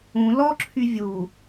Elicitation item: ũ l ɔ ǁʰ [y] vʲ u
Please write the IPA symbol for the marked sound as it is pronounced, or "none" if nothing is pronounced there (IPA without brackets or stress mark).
y